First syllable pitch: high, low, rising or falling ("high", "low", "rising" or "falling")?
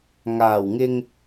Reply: low